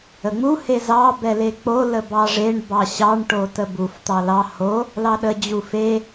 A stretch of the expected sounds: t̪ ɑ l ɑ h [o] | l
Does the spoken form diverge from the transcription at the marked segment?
no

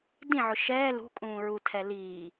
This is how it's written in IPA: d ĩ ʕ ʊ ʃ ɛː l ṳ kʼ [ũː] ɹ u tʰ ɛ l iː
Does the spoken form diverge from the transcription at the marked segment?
no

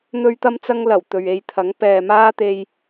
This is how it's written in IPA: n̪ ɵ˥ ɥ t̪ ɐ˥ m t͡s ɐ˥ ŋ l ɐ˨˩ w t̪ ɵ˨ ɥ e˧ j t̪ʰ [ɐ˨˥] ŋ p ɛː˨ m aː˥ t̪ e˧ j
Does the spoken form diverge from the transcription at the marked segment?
no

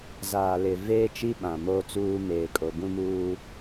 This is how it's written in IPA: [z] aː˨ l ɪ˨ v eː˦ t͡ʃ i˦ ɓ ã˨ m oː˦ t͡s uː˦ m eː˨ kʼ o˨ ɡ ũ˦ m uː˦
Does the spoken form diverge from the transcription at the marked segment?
no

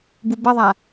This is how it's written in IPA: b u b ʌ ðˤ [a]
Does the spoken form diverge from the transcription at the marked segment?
no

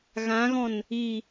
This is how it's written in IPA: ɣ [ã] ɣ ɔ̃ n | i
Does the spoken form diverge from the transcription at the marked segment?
no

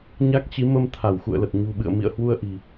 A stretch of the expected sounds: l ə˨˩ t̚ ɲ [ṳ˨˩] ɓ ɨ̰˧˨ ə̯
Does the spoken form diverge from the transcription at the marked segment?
no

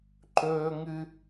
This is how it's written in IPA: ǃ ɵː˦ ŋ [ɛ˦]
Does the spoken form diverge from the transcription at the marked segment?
yes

